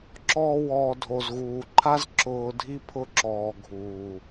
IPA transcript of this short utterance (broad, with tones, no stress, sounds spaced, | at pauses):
ǁ ɔː˧ w ɔː˨ dʱ o˨ z ɣ uː˨ ǃʰ a˦ z ǁ ʊː˧ dʱ i˦ pʰ ʊ˦ ǁ ɔː˨ ɡʱ uː˨